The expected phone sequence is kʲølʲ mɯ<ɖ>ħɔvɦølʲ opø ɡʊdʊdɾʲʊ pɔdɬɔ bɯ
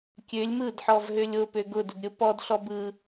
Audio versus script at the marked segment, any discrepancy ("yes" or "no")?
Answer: yes